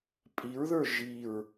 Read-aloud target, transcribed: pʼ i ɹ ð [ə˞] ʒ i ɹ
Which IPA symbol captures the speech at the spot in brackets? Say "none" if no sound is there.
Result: ə˞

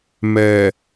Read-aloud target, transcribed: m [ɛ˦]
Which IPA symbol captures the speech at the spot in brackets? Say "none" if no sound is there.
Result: ɛ˨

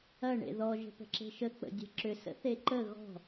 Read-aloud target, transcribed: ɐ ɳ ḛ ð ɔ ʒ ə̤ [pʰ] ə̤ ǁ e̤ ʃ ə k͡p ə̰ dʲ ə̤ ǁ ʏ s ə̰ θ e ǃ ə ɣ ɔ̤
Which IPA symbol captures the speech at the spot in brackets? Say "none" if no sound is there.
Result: p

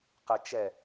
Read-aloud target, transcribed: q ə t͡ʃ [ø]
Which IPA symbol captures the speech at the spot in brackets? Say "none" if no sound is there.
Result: ɛ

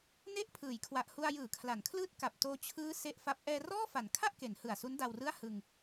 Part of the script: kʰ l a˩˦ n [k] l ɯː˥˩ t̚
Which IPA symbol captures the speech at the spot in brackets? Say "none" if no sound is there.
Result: kʰ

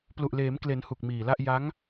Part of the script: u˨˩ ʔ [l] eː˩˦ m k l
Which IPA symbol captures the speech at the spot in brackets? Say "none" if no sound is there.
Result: l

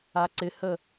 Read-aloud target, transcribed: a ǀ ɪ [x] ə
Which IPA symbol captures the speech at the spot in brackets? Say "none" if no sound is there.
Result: h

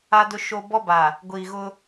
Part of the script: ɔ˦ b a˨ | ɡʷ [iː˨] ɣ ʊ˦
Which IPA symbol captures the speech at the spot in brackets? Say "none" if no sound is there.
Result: iː˨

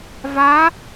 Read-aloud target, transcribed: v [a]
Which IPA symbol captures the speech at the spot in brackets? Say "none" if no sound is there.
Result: a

